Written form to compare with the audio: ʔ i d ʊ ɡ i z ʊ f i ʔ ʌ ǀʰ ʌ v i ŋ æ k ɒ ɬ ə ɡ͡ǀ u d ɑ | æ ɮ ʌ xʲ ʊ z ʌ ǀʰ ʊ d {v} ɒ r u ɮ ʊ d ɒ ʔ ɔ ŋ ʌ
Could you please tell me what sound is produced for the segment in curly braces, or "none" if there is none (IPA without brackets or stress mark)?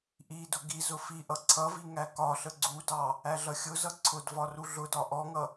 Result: v